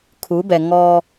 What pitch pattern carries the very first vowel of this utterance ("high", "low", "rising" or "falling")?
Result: rising